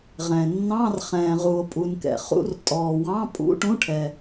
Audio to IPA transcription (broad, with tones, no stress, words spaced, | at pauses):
ʁɛ̃ː˨ nːɑ̃˧˥˧rχɛ̃ː˨ʁu˨o̯ pʼu˨nkɛ̰˨χṵ˧˥˧r tʼɔː˨wɑ̃˧˥˧ pʼṵ˧˥˧ʈũ˧˥˧ʈʰɛ˨